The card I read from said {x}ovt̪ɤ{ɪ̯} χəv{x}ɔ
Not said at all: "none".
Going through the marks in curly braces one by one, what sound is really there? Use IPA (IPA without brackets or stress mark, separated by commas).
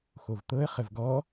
x, ə̯, ɡ